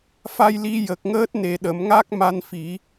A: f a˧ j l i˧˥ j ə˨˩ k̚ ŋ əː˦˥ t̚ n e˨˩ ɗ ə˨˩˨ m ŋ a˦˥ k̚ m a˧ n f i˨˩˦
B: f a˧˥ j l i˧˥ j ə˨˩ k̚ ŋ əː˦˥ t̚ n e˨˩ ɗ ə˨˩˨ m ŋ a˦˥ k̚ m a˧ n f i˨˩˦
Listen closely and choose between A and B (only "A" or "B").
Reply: A